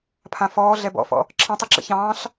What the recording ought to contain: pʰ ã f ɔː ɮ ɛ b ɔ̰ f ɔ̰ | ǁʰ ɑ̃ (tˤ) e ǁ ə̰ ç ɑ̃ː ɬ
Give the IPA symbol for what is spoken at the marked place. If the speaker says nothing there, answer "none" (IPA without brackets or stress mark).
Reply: tˤ